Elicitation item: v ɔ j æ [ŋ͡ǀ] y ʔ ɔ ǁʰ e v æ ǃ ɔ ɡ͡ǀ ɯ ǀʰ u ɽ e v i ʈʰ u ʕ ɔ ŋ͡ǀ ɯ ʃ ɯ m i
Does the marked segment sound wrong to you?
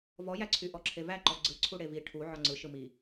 yes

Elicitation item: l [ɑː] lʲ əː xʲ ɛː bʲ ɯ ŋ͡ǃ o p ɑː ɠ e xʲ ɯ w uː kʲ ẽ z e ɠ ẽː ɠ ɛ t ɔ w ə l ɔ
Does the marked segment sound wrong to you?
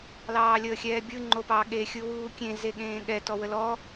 no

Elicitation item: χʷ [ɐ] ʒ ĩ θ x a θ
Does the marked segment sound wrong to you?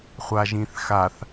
yes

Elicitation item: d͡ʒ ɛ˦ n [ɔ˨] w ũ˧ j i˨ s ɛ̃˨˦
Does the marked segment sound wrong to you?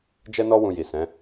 yes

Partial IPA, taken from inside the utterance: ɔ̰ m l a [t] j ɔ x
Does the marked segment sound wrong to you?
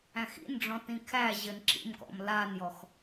yes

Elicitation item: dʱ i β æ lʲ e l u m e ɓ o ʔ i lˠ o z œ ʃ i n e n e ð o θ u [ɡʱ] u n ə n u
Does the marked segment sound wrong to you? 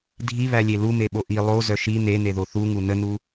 yes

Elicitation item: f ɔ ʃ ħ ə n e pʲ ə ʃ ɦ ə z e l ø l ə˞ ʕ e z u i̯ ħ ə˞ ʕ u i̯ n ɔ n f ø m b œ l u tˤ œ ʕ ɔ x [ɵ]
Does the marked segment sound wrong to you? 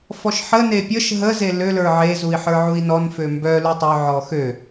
yes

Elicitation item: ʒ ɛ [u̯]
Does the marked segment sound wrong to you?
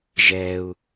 no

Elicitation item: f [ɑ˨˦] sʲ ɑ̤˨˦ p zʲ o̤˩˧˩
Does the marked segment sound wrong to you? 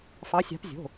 no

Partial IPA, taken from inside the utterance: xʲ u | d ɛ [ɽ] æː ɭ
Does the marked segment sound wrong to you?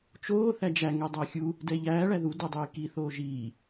yes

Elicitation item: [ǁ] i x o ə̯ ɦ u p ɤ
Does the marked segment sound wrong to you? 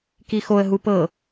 yes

